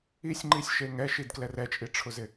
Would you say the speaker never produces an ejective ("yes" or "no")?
no